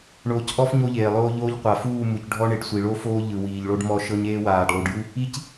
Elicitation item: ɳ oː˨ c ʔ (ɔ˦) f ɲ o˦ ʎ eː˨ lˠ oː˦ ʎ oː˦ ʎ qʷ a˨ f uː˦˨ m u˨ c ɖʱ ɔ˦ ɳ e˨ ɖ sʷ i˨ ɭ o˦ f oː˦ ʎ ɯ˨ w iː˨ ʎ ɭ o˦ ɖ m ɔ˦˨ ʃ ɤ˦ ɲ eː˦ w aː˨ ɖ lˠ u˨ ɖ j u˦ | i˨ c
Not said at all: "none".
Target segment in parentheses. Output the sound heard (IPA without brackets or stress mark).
ɔ˦